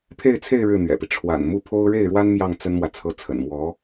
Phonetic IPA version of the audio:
pʰ e˥˧ ɪ̯ t͡sʰ e˥˧ ɪ̯ ɻ ɻ̩˥˩ n̪ ɥ ɛ̰˨˩ p i˦ ʈ͡ʂʰ w a̰˨˩ n m u˥˩ pʰ o˥ ʊ̯ ɻ e˥˩ ɪ̯ ɻ w a˥ n m j ɑ˥˩ ŋ t͡s ə˥ n m w ä˨ t͡sʰ ɤ˧˥ t͡sʰ ə̰˨˩ n m w ɔ˧˥

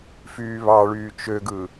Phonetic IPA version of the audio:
f yː β ɑ ɭ yː t͡ʃ ø ɡ ɯ

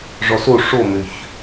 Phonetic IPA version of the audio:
ʐ ɔ s o ʂ o m ø ç

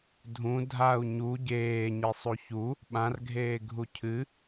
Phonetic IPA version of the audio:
dʱ ũ dʱ a u̯ ɲ u ɟ eː ɲ i sˤ u ç u | ɓ ã r ɡʱ eː ɡʱ u cʰ ɨ

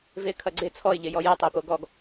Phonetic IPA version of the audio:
v e kʰ ɐ ɡ͡ǀ e t͡sʰ ɔ ɪ̯ ʎ e j ɔ j ɐ tˤ o p o ɡ ɔ ɡ

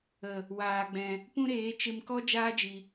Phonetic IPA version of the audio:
ə˨ | w aː˨ ɡ͡b ɛ̃˨ | p ũ˦ ɾ eː˨˦ t͡ʃ e˧ m k ɔ˦ d͡ʒ aː˦ d͡ʒ i˨

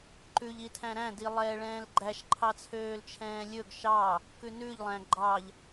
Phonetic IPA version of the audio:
ǃ ʉ ʎ i tʰ æ̃ ɾ æ̃ d i lˠ ɛː ɭ ɛ̃ː l ɡ͡ǃ æ ʃ ǃʰ ɑ t͡sʰ øː l t͡ʃʰ ɛ̃ː lʲ ɵ ɡ ʃ ɑ | k ʉ n ʉ ʎ lˠ æ̃ ɡ͡ǃ ɑ ʎ

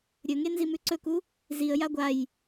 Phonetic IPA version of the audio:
ɾʲ ɵ ŋ e n z i m ʉ ǀ ɵ k u | z i ə̯ j a ɡʷ a j

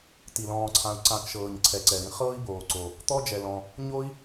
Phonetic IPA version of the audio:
t i˩ l ɔ̃ː˨ ǀʰ ã˨ u̯ ǀ ã˨ k ʃ ɤː˩ ɲ ǀʰ ɛ˩ ǀ ɛ˩ ɾ ĩ˦ χ ɤː˥ i̯ b oː˩ ǀ o˩ | t̪ ɔ˥ d͡ʒ ɛ˨ l ɔ̃˨ | ɲ o˥ i̯

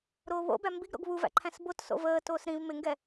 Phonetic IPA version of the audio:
ɾ oː β o̰ b æ m b i ɡ ɾ o̰ ɡ β u v æ̰ ǃʰ æ̃ s b o t s o̰ v əː t oː s ɾ ĩ v m ɪ ŋ ɡ ɛ

